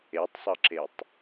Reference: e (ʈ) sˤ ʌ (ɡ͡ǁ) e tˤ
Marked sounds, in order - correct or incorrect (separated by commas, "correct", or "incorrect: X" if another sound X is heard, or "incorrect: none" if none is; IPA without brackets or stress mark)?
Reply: incorrect: tˤ, incorrect: ǁ